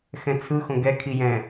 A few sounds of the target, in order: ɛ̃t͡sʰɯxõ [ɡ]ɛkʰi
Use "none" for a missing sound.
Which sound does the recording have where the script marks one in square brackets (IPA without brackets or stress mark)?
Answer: ɡ